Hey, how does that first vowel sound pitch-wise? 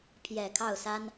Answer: low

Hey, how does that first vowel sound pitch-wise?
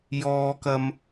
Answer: high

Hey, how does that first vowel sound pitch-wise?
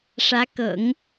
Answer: rising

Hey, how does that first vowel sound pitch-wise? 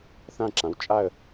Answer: falling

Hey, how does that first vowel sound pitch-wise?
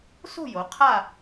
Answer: falling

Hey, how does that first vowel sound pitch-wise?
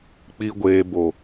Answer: high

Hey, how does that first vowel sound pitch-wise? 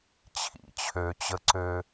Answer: low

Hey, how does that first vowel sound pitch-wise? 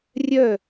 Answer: falling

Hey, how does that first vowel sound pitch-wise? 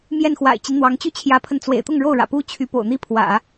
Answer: falling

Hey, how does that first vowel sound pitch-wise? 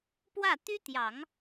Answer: falling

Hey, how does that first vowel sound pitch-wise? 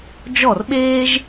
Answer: falling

